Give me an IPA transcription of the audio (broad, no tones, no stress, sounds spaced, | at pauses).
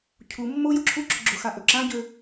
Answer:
cʰ u mː o j ʊ ǁʰ u ǁ ʊ ɡ͡ǁ ʊ x a ʔ ɵ ǁ ã ɟ ø